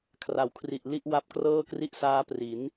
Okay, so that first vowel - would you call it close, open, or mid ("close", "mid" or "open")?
open